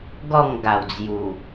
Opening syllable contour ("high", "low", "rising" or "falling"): falling